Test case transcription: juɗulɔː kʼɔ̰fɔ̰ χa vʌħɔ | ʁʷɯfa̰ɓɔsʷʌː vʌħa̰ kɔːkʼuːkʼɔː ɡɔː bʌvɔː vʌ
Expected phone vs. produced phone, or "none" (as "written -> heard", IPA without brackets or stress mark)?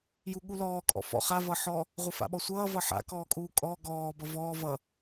ɗ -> ɠ